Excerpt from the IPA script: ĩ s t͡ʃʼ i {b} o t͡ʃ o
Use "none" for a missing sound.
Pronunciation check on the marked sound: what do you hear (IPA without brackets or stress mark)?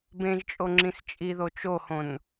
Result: ð